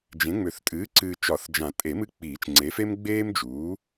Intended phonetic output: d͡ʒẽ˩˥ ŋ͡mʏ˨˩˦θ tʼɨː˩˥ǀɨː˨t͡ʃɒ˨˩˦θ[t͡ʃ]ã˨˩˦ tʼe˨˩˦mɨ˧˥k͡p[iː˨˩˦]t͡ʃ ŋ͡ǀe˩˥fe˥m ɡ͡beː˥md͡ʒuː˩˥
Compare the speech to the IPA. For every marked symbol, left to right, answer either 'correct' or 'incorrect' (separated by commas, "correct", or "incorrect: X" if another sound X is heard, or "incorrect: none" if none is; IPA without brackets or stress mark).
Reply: incorrect: d͡ʒ, correct